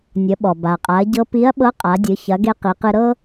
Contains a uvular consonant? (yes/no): yes